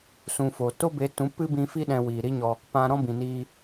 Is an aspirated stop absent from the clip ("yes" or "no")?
yes